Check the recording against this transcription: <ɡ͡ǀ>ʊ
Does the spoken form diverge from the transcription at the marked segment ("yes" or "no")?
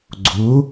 no